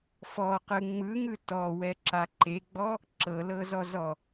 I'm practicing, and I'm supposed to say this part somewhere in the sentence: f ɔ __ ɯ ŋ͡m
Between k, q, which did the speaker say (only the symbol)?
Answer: q